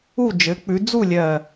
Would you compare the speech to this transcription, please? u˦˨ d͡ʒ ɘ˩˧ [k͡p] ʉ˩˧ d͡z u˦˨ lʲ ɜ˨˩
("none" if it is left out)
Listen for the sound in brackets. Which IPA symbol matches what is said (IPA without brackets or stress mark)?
k͡p